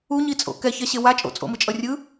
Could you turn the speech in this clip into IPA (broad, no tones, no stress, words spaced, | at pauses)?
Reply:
uɲit͡sʼo̰ kɛçɛɕe wa t͡ʃʼo̰t͡sʼo̰mɯt͡ʃʼʌ rʲɯ